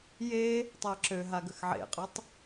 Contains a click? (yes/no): yes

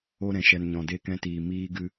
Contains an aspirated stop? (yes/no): no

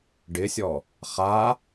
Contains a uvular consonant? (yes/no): yes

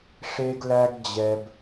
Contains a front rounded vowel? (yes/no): no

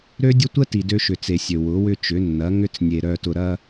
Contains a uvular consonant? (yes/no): no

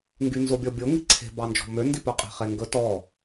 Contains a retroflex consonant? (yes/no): no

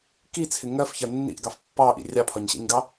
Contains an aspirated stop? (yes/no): yes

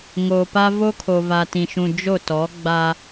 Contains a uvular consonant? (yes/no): no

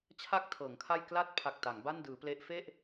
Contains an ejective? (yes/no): no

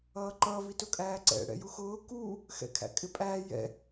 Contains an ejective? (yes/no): yes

